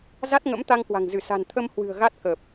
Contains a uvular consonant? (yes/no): no